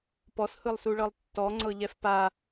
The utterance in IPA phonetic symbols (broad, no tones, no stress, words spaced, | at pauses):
pɔshɯlˠsuɭɤlˠ tːɔŋ͡ǀɤʎɛf pa